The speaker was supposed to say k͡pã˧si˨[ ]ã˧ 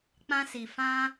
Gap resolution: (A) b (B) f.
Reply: B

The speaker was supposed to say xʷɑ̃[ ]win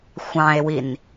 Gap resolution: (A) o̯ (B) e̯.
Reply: B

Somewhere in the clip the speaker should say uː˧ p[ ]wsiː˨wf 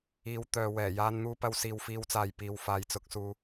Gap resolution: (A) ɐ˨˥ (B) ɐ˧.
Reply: B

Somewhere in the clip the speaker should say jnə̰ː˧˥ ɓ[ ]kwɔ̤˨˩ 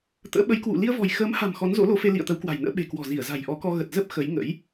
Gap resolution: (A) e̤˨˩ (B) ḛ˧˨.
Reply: A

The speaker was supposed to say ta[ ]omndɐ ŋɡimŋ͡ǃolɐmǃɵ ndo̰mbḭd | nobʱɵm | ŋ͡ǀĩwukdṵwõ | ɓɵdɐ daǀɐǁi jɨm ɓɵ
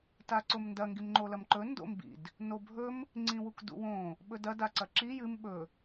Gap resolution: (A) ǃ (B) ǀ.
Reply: B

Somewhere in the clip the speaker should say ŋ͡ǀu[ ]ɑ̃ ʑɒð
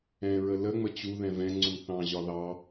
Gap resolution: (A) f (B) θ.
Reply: B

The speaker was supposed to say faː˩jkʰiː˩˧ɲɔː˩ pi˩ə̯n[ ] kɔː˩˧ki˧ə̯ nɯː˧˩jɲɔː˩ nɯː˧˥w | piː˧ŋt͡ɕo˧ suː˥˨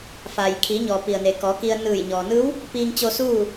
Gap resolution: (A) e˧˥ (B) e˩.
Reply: B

